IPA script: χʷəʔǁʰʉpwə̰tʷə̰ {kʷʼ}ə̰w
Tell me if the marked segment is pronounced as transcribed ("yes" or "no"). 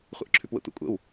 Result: yes